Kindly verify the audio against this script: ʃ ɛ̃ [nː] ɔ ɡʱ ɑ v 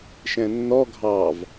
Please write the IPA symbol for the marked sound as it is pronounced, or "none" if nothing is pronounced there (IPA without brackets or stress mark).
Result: nː